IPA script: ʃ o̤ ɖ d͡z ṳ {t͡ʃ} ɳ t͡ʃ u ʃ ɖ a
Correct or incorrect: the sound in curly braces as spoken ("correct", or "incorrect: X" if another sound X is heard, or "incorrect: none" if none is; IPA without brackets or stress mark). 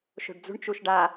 incorrect: none